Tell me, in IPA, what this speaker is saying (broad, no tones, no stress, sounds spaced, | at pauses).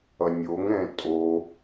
ʌ nʲ o ŋ ɛ̃ tʼ o